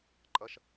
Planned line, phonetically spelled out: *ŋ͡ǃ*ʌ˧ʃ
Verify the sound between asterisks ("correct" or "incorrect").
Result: incorrect